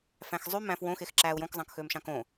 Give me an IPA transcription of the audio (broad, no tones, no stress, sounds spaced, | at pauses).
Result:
f æ̃ x zˤ y m æ̃ f w õ x e x ǁ æː u̯ j õ k zˤ ɑ̃ k x øː m ʃ ɑ̃ k õ